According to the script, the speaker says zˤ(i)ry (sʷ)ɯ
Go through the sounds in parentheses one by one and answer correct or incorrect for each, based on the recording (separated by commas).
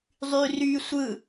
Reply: incorrect, correct